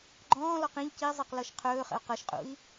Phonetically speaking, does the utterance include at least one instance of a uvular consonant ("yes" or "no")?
yes